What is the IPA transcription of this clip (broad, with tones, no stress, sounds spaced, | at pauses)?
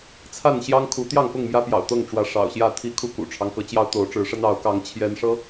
t͡sʰ a˥˨ n ɕ j ɑ˦ ŋ kʰ u˨˦ t̪ j ɑ˥˨ ŋ p ʊ˥˨ ŋ m j ä˦ p j ɑ̰˨˩ ʊ̯ t̪ ɤ˥˨ ŋ ʈ͡ʂ w ä˨˦ ʂ ɑ̰˨˩ ʊ̯ ɕ j ä˥˨ t̪ʰ i˦ kʰ u˦ k ṵ˨˩ ʈ͡ʂʰ ɑ˦ ŋ k ɤ˨˦ t͡ɕ j ɑ˦ ʊ̯ t̪ o˨˦ ʊ̯ ʈ͡ʂ ɻ̩˨˦ ʂ ə˦ n ɑ˨˦ ʊ̯ k ɑ˨˦ ŋ t͡ɕʰ j ɛ˦ n ʂ ɤ˦